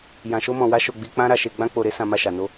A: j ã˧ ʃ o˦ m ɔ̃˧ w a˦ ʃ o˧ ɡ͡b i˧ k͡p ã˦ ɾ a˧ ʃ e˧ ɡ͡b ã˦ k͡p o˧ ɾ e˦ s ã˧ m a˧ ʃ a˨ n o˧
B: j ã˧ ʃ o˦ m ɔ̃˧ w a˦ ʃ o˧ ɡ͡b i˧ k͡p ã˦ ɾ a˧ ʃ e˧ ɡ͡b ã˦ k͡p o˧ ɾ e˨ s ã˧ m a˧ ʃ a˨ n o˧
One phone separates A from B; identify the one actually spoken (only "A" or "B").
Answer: A